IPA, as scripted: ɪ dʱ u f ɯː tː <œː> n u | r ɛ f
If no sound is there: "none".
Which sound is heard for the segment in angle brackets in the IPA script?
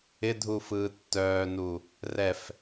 œː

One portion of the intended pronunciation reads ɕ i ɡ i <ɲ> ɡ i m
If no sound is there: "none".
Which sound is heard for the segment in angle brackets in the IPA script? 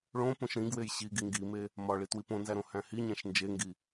ŋ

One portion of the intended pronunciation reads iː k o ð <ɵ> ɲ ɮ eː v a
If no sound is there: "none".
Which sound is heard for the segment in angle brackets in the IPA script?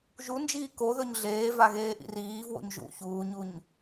ɵ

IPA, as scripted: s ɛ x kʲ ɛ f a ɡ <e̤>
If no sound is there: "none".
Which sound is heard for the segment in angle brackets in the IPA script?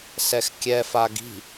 i̤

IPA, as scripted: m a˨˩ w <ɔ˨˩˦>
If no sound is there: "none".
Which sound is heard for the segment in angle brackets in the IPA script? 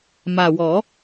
ɔ˨˩˦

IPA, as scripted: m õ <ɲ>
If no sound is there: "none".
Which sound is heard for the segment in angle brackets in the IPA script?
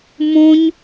ɲ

